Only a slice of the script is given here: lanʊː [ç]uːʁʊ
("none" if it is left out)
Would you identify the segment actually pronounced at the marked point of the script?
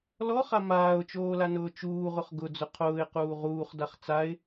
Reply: t͡ʃ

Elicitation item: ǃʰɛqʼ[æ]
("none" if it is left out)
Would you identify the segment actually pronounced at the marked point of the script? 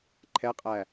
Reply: æ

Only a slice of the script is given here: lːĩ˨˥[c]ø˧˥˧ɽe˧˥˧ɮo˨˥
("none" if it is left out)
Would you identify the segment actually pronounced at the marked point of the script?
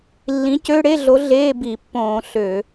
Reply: c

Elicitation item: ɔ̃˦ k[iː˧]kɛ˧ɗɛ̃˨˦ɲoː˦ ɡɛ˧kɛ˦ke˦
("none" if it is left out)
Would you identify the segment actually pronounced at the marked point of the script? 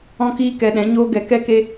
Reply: iː˦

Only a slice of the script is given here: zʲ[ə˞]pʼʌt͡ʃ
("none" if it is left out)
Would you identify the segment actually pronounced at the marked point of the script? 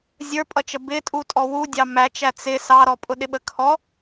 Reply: ə˞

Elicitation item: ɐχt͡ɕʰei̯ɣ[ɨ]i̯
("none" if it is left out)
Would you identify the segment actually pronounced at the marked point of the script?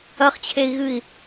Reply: ɨ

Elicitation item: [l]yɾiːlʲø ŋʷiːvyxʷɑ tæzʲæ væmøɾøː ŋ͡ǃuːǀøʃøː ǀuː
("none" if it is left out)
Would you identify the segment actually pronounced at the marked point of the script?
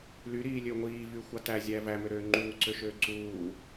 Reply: l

